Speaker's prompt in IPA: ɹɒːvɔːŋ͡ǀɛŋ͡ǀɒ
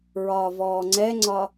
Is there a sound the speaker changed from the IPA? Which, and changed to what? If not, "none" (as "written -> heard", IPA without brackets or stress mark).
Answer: none